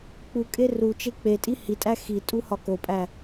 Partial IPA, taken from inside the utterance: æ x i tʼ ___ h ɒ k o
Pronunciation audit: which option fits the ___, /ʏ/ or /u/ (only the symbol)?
u